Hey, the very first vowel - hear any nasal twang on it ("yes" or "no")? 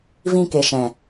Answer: yes